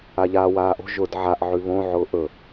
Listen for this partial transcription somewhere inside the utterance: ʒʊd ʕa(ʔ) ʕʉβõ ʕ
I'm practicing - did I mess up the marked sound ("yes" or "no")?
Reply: no